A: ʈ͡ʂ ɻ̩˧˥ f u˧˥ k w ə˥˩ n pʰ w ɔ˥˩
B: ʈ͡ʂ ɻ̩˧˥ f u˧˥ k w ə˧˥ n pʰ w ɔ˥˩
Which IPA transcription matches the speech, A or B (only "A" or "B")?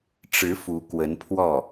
B